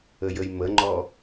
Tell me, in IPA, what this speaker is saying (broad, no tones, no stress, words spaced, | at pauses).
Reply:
əjəjməŋ͡ǃɔ